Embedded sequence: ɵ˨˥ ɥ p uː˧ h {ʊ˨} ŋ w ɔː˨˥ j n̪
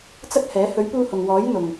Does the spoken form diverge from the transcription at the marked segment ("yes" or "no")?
no